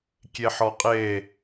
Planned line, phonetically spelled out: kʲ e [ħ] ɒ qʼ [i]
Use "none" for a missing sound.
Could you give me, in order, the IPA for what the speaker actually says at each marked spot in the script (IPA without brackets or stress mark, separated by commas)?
ħ, e